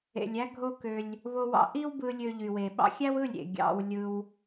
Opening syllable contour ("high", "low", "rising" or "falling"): low